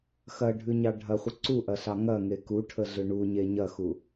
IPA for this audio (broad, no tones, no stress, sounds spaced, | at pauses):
x ɐ ɖʱ ʉ ɲ ɑ ɖʱ ɐ χʷ ə ǀ u ʔ ɐ ɬ ɑ ŋ ɐ ŋ e k u ʈʰ ə ɮ ʏ ɳ u ɲ e ɲ ɐ x u